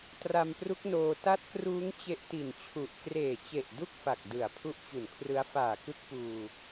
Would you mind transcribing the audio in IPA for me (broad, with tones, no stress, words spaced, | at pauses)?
tra˧mpru˦˥k̚noː˧ ta˦˥t̚kruː˦˥ŋ t͡ɕe˦˥ʔti˨˩nt͡ɕʰu˨˩ʔ kreː˨˩t͡ɕe˨˩ʔ du˥˩k̚fa˨˩k̚ dɯ˨˩a̯ pʰu˦˥ʔt͡ɕu˨˩nkʰrɯ˦˥a̯ faː˨˩kɯ˦˥k̚puː˧